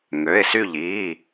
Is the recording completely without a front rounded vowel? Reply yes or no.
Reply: no